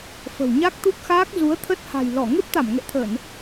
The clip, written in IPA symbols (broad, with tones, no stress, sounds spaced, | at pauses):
f ə̤˨˩ w ɲ a˦˥ k̚ t̪ u˦˥ k̚ x aː˦˥ k̚ z u˨˦ ə̯ t̪ʰ ə˦˥ t̚ h a̤˨˩ j l ɔ˧˩ ŋ e˦˥ p̚ t̪ a˧˩ m ŋ ɛ̰˧˨ t̪ʰ ə˧˩˨ n